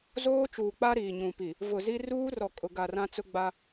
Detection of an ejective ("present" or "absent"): present